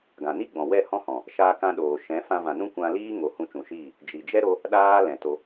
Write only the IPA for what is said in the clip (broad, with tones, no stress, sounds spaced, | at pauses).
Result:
ɡ ã˨ n i˦ ɡ͡b ɔ̃˨ w ɛ˦˨ h ɔ̃˦ h ɔ̃˨ | ʃ aː˧ k ã˧ ɗ oː˨ ʃ ɛ̃˨˦ f ã˧ v ã˨ n ũ˦ kʷ ã˧ l iː˦ ŋ o˨ h ũ˧ t͡ʃ ũ˨ ʃ iː˦˨ | d͡ʒ i˨ d͡ʒ ɛ˦ ɾ o˦ | ɗ aː˦ l ɛ̃˨ t o˧